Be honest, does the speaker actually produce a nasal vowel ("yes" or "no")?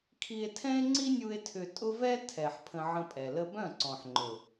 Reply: yes